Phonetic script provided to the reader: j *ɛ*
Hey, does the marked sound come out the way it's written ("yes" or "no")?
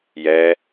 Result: yes